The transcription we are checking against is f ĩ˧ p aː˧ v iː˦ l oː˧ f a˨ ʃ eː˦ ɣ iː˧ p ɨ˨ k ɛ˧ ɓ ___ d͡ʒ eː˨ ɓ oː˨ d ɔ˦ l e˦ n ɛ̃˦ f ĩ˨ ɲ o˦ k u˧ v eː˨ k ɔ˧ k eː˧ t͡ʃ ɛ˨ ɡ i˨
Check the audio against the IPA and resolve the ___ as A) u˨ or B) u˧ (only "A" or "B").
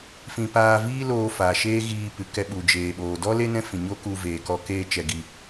A